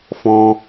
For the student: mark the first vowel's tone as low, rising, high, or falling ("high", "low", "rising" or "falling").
high